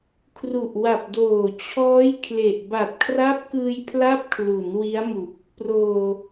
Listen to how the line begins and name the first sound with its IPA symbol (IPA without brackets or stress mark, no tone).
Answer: kʰ